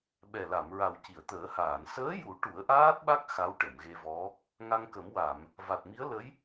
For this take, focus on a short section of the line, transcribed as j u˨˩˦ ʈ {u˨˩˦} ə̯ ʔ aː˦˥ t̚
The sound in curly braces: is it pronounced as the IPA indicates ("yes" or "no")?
yes